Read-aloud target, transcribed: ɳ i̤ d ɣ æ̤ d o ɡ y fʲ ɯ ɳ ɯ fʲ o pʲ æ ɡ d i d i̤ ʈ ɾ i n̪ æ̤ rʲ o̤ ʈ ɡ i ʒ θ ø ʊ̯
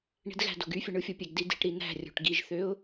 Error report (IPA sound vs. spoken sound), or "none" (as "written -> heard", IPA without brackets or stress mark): none